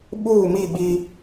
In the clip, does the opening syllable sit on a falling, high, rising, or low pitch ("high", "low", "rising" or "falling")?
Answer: falling